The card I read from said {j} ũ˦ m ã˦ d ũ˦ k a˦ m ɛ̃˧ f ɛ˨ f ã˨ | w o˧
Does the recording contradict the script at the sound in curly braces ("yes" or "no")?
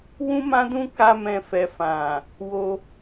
yes